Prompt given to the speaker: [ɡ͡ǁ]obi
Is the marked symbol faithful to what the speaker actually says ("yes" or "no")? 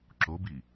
no